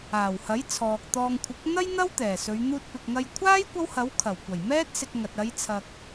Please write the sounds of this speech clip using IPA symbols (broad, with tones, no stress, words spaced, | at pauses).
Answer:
aː˨˩whɐ˨˥j t͡sʰɔː˨k̚t̪ɔː˧ŋ kʷʰɪ˨˥k̚n̪ɐ˥jn̪ɐ˥w t̪ɛː˨˩sɵ˨˧ɥ n̪uː˧t̚pɪ˨k̚ŋɐ˧j kʷʰaː˥j kʷɐ˥whɐ˨˥w kʰɐ˨˩wkʷɐ˨˩j mɛː˥t̚ sɪ˧k̚ŋɐ˨t̚ ɐ˨˧jt͡sʰɐ˨k̚